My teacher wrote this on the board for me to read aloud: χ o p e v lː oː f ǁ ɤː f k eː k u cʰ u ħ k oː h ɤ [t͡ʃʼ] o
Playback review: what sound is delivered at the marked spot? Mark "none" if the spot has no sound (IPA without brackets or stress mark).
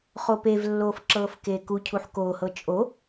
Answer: t͡ʃʼ